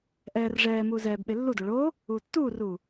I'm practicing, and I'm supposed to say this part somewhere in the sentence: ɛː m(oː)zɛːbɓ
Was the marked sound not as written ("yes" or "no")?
yes